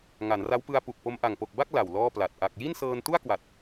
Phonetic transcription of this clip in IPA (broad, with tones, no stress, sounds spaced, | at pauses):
ŋ a˩˦ n r a˦˥ w p ɯ˧ a̯ p u˨˩ k̚ p o˧ m ʔ a˨˩ ŋ p o˨˩ k̚ b a˥˩ k̚ l a˨˩ w l ɔː˥˩ p l a˨˩ t̚ ʔ a˨˩ k̚ j i˥˩ n s ɤː˧ n t u˥˩ a̯ k w a˨˩ t̚